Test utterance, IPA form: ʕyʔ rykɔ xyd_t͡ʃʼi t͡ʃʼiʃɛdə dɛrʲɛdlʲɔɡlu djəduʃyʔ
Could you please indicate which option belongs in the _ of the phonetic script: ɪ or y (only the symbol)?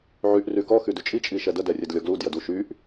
y